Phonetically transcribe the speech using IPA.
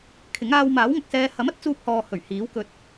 kʰ ɪ˨˥ ŋ aː˧ w m aː˨˥ w ŋ ɐ˨ k̚ s ɛː˧ h ɐ˨˥ m ɐ˨˥ t̚ t͡s uː˧ p̚ h ɔː˨ h ɵ˨˩ ɥ h iː˨˥ w k ɵ˧ t̚

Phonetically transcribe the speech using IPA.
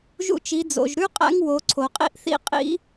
ʒ ṵ˧ t͡ʃ i˩˧ d͡z o̰˩ ʒ ɾ ʉ˥ qʼ æ̰˧˥ ŋ w o˩˧ ǀʰ o˩ qʼ ḭ˥ ʔ θ ḭ˥ qʼ ḭ˥

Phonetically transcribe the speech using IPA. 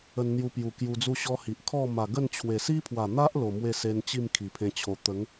ə˧ n n̪ j u˧ p j u˨˩ k j u˧ d͡z u˥˧ ɕ ɔ˦ h i˨ ʔ kʰ ɔ˥˧ m a˨˩ ɡ ə˥˧ n t͡ɕʰ w e˨˩ s i˦ pʰ w a˨˩ n̪ a˦ ʔ l o˨˩ m w e˥˧ s e˧ n t͡ɕ i˥˧ m kʰ i˨˩ pʰ ẽ˦ t͡ɕʰ o˧ t̪ ə˨˦ ŋ

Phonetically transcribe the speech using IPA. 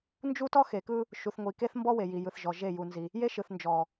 n d͡ʒ u˦ t ɔ˦ x e˨ k ɯ˦ | ʃ u˨ θ ŋʷ i˨ k e˦ θ m b ɔ˦ w e˨ j i˨ j ɯ˨ θ ʒ ɔ˨ ʒ e˦˨ j u˨ n z i˨ | j e˦ ʃ ɯ˨ θ n d͡ʒ ɔ˨

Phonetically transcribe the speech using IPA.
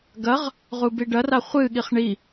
ɡ ɐ ʁ | ʁ u b i ɖ ɐ r a χʷ ɨ ɠ i χ ɳ i

